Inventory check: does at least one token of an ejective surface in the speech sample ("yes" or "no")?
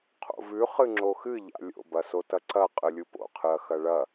yes